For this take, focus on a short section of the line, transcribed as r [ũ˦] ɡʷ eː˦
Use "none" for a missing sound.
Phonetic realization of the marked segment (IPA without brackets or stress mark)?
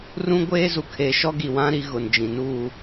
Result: ũ˦